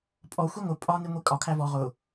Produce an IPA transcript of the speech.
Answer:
pʼɔ xʷiŋʷɪ pʼɒ niŋʷikʼɒ kʰævɔ ʁʊ

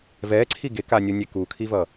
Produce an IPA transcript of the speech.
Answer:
vɛǀʰi ɡekanʲonʲe kukʰivʌ

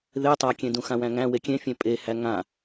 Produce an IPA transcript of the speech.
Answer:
ðe tˤakʲẽdũ xãwæ̃ŋæ̃ wekʲẽfʲẽ pʼehæ ŋã

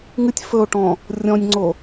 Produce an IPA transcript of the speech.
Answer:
ŋɨtʲ fɵo̯ʈɔ̃ | rʲɔ̃nʲŋ͡ǀo

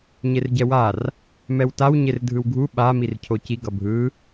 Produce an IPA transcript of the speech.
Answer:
ɲerɟɛwar | mɛwtaw ɲerdʱɯwɡʱu ɓa mircʰoci ɡʌbʱɯ

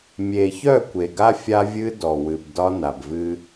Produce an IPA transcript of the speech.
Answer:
mʲe˨çœ˦˨ kʷe˨ɡa˦ fʲa˦vʲɨ˦ dɔ˨wɨ˨b dɒ˦na˨bvɨ˦

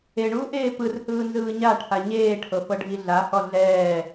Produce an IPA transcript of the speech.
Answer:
eɳuːʔeː pɯrhɯːnzɯː ɲaʈʰa ɲeːʈʰɤfɤɖʱi ɮahɔ ɮɛː

